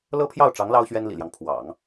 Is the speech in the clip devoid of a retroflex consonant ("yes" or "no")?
no